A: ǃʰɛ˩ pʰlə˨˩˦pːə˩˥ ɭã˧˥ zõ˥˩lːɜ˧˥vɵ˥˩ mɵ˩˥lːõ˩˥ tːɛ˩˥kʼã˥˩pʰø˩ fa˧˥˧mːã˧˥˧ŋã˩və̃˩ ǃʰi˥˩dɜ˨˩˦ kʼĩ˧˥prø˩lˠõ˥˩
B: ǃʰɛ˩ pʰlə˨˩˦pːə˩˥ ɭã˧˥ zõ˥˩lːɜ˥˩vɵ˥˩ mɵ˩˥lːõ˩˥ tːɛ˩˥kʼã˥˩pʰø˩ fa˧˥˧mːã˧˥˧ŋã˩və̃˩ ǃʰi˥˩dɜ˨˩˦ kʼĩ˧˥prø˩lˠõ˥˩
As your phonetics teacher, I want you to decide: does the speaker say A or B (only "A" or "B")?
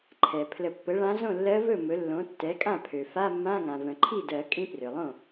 A